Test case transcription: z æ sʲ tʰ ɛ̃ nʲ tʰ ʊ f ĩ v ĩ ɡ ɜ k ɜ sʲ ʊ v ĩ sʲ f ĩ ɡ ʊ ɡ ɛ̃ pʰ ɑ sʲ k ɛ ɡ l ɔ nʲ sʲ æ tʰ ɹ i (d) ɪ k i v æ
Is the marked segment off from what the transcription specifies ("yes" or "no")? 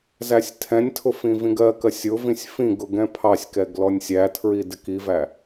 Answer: no